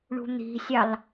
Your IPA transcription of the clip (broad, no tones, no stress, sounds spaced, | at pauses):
ɳ ṳ n̪ i̤ sʲ ɑ l